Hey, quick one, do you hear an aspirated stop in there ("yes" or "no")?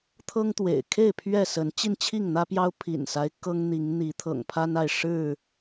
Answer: yes